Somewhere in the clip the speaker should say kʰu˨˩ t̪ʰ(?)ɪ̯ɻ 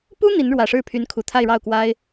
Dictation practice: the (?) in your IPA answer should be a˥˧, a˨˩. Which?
a˥˧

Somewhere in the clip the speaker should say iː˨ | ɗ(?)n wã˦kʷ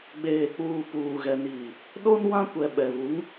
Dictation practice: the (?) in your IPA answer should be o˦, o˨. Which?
o˦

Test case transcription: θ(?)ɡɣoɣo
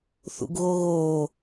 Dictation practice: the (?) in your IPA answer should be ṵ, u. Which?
ṵ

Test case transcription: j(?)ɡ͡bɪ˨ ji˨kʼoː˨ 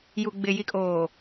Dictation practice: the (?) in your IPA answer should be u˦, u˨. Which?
u˨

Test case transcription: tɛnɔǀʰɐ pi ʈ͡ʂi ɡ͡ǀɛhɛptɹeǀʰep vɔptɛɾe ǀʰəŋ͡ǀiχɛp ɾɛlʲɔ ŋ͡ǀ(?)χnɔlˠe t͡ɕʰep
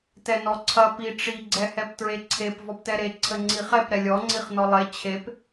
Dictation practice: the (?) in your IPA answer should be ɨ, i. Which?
i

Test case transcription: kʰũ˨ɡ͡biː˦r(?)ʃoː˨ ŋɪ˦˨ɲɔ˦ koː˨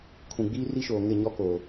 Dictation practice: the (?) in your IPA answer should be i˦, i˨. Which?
i˦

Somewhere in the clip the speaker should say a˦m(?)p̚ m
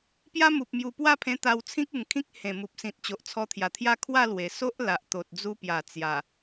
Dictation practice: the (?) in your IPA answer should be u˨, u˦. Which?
u˨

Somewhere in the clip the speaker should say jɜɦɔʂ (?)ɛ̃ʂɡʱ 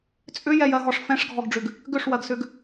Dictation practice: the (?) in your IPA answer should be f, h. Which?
f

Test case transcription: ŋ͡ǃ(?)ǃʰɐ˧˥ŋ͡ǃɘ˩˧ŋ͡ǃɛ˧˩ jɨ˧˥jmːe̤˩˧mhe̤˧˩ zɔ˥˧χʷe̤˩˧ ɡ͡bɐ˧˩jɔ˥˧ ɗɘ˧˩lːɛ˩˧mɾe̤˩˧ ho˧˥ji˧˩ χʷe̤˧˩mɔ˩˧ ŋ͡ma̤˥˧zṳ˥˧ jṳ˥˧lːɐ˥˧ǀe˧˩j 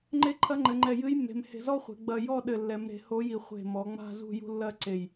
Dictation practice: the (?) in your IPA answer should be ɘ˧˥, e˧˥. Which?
e˧˥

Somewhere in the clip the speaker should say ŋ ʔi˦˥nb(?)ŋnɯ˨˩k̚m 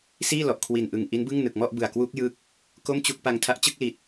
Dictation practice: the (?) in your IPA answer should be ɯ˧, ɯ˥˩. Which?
ɯ˥˩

